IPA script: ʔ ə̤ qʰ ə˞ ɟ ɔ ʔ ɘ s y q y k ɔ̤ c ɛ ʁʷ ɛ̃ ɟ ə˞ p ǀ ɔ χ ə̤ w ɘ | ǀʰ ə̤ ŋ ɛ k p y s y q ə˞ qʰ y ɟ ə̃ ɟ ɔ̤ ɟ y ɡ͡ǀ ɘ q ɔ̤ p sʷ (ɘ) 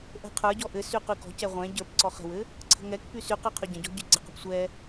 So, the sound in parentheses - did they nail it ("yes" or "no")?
no